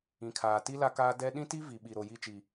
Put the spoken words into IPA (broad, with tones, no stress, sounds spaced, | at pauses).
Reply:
ĩ˨ kʰ aː˨ t i˦ l a˦ k aː˦ d ɛ˦ ɗ ĩ˦ t i˦ v i˨ ɓ i˨ ɾ o˨ j i˦˨ t͡ʃ i˨